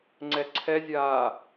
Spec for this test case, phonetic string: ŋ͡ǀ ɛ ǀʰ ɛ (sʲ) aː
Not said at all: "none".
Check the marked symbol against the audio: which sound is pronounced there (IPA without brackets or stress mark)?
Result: zʲ